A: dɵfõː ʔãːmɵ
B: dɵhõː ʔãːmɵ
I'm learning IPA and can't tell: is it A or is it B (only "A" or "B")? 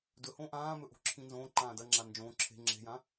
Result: B